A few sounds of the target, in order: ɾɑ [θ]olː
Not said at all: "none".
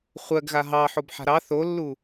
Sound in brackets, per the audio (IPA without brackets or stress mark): θ